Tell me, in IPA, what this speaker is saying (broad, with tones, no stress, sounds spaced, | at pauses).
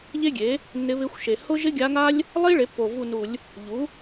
ʎ e˥ ɡʲ e˩˥ | nː ɪ˧˥ β ɪ˧˥ xʷ ʃ e˨˩ h ʊ˥ ʒ ɪ˥ ɡʲ a˧˥ ŋ a˥ lʲ | lˠ i˥ ɭ e˩˥ pː o˨˩ v u˦˨ n u˧˩˧ lʲ | ʎ u˩˥